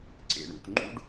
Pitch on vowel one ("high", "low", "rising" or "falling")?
low